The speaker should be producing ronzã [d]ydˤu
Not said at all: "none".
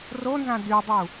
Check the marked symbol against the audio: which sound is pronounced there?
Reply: d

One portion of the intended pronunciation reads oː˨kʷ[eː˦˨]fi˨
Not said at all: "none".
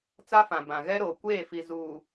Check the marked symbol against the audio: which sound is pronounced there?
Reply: eː˦˨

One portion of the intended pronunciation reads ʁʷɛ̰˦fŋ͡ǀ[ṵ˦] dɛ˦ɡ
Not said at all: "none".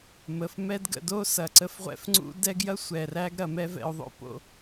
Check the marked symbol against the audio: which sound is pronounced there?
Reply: ṵ˦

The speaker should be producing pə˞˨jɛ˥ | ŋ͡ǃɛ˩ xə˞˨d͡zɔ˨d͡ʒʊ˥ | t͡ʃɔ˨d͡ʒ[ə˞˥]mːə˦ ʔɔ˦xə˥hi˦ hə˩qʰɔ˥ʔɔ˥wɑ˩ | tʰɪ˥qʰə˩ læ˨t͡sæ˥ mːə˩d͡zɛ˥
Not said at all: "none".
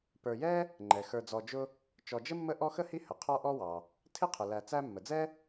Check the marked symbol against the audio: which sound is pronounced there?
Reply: ə˥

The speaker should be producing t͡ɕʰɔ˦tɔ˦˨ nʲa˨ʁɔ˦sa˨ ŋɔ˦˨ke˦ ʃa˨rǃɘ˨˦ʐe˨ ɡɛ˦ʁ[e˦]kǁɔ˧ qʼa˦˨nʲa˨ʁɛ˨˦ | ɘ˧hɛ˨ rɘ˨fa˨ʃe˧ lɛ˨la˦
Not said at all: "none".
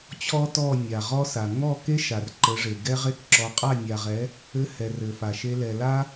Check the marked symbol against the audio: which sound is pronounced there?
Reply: e˦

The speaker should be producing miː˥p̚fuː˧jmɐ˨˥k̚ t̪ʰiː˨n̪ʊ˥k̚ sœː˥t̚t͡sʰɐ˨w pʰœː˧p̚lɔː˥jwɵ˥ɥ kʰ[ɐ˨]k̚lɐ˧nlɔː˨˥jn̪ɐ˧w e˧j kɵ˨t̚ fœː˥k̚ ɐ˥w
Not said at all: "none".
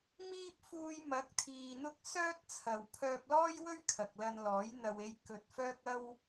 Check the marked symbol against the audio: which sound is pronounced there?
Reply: ɐ˨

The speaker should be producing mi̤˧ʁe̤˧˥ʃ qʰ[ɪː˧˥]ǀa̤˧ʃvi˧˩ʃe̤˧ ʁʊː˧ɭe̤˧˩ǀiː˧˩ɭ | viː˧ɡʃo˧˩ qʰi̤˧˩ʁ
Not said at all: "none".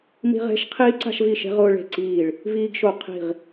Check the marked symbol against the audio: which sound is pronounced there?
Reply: iː˧˥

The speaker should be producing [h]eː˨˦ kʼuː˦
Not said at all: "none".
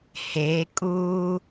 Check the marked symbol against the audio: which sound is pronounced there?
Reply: h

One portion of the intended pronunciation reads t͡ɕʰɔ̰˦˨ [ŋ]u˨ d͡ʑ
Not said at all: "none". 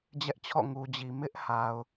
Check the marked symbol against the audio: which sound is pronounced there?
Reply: ŋ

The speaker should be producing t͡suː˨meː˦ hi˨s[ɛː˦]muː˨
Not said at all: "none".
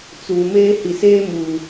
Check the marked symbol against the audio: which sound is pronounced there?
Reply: eː˦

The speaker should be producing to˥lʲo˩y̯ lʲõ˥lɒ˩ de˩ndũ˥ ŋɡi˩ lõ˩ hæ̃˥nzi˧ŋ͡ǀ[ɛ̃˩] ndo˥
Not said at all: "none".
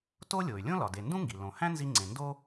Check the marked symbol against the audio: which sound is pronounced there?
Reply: ẽ˩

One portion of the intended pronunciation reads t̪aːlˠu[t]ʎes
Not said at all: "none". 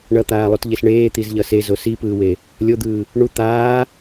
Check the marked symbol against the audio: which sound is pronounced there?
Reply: t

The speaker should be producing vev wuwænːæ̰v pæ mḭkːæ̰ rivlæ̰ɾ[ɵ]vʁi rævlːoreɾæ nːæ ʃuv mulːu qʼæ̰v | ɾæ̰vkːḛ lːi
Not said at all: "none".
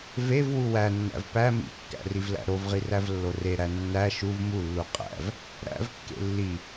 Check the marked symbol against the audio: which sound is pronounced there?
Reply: o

